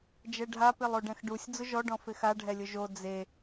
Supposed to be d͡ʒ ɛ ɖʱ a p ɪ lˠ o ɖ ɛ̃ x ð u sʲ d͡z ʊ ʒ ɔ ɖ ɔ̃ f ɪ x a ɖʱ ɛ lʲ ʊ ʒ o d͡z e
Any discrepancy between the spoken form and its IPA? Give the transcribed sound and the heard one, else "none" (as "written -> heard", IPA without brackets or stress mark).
ð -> ɖ